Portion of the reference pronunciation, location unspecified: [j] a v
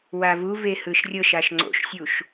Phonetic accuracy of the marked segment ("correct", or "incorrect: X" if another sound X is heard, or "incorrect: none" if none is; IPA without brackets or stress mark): incorrect: w